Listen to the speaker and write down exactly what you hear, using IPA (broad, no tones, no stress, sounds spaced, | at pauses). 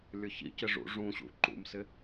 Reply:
lʲ ʊ ç ḭ c ɪ ʐ ṵ ʐ ũ ɕ ṵ ǃ ṵ m s ɪ